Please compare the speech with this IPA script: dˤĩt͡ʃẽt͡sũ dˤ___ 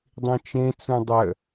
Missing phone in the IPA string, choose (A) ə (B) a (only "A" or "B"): A